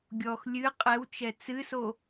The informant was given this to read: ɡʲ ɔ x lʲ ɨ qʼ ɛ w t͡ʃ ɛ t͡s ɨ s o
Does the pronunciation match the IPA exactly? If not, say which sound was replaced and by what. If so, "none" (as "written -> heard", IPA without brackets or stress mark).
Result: none